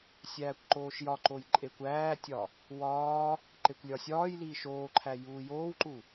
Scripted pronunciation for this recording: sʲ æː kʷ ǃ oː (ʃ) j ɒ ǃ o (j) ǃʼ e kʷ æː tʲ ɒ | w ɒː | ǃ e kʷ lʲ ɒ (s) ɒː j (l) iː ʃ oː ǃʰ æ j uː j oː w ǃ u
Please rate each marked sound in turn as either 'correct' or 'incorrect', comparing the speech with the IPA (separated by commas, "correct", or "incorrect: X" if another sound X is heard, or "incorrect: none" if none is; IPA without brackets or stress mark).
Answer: correct, correct, incorrect: sʲ, correct